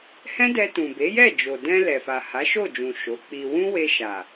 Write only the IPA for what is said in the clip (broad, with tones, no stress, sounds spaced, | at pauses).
h ɛ̃˦ d ɛ˧ t ũ˨ b e˨˦ j ɛ˦˨ d͡ʒ o˨ d ɛ̃˧ l ɛ˨ f a˨ h a˨˦ ʃ o˦˨ d͡ʒ ũ˨ ʃ o˨˦ k͡p i˧ w ũ˦ w e˧ ʃ a˨